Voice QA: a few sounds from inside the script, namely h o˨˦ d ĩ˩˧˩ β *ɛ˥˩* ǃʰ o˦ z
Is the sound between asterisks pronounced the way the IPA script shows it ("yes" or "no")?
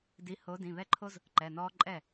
yes